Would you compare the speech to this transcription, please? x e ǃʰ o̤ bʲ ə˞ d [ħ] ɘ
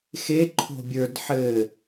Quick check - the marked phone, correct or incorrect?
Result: correct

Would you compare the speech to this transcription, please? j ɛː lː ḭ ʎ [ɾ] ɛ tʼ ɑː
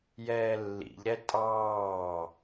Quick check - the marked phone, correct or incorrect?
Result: correct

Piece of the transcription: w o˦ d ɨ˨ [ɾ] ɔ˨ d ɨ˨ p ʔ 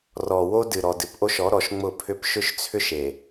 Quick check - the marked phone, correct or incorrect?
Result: correct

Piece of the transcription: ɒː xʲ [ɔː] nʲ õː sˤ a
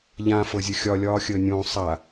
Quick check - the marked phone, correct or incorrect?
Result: incorrect: əː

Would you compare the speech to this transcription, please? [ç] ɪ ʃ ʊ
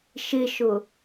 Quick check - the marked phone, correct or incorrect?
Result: incorrect: ʃ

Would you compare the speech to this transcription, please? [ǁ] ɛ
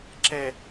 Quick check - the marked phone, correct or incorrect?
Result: correct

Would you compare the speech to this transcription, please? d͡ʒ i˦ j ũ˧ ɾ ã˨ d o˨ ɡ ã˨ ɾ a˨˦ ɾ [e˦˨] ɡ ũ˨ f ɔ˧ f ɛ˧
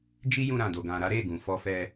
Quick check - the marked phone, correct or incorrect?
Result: correct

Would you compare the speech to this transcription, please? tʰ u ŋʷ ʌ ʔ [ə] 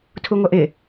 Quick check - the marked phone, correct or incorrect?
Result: incorrect: ɪ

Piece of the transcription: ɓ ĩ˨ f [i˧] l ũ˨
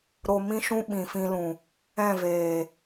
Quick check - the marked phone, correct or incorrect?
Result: incorrect: ĩ˧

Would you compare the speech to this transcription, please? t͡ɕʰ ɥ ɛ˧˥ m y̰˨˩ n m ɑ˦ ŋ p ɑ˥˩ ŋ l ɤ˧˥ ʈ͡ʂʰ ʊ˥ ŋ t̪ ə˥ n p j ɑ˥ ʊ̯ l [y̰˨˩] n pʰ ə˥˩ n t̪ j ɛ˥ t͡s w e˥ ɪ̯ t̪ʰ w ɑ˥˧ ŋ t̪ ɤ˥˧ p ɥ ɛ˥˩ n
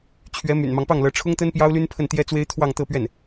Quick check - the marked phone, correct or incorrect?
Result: incorrect: y˥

